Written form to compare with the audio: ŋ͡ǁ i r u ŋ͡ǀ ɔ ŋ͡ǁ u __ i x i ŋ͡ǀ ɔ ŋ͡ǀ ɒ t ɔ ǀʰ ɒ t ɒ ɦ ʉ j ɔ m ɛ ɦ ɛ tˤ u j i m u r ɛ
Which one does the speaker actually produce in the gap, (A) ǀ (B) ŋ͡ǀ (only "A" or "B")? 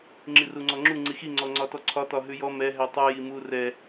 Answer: B